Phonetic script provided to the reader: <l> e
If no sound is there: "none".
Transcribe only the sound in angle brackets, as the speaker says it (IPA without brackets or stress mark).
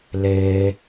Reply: l